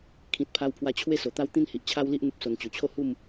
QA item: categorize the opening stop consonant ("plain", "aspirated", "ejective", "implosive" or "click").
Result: aspirated